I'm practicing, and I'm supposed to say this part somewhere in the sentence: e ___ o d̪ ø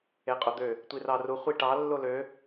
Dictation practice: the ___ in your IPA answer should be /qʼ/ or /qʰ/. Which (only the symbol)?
qʼ